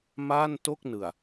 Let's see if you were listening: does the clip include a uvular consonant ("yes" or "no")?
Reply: no